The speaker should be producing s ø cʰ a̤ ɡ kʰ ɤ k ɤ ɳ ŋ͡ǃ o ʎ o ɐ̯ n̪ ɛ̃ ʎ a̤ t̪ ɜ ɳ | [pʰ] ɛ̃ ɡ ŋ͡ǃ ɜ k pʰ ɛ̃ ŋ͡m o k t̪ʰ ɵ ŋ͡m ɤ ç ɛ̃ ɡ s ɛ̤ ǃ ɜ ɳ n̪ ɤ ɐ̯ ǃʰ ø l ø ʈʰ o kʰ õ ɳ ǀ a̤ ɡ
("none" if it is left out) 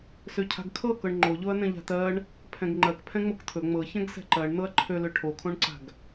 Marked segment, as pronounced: pʰ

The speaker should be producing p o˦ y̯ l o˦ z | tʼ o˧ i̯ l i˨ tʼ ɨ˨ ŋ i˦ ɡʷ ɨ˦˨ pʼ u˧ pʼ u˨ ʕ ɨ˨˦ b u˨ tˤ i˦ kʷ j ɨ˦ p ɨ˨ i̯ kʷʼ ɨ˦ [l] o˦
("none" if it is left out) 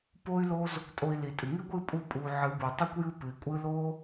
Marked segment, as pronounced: l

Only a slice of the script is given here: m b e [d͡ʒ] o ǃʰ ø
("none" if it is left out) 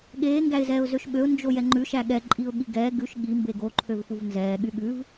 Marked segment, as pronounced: ɡ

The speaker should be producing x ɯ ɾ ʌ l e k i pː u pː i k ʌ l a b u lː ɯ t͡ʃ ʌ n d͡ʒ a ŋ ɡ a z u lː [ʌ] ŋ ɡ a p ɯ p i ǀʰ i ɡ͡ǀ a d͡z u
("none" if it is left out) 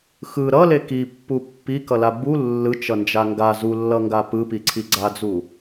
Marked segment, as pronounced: ʌ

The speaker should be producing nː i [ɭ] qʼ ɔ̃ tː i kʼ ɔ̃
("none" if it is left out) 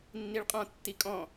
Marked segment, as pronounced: ɭ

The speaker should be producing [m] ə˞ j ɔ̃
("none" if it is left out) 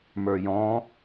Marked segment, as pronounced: m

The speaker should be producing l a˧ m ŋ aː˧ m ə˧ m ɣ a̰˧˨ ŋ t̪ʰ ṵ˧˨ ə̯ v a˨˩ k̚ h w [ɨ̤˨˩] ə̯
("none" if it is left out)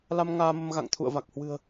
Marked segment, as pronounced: ɨ̤˨˩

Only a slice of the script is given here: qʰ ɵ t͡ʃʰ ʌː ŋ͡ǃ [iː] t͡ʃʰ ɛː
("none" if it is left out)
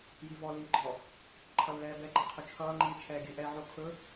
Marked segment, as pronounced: iː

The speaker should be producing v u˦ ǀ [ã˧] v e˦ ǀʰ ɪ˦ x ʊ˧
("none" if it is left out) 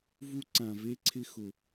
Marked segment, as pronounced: ã˧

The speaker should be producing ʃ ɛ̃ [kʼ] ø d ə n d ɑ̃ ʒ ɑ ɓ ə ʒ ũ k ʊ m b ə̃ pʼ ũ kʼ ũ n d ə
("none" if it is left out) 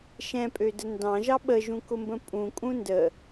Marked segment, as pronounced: pʼ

